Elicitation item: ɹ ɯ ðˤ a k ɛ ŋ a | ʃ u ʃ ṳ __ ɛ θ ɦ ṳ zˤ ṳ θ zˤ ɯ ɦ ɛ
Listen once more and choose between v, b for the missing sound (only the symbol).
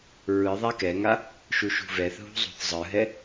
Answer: v